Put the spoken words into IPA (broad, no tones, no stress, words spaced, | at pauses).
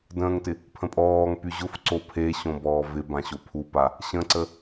də̃ːŋtɪ | pʰə̃pʼɔːŋpy ʑʊfǀo pʰeɕõ bɔːvɪbã ɕopʰupa | ɕə̃ǀə